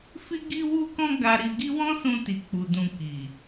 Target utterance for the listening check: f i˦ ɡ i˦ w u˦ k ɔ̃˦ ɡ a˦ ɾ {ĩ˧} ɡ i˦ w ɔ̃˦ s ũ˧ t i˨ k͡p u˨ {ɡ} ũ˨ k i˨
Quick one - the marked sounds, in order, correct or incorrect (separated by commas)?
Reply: incorrect, incorrect